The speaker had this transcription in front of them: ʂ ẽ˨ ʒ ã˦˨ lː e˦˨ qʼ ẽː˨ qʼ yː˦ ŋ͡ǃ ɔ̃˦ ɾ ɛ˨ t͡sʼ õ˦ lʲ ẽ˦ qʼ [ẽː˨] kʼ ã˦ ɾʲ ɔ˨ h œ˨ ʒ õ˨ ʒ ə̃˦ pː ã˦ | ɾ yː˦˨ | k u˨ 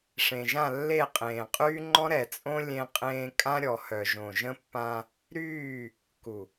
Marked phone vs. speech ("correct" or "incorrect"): incorrect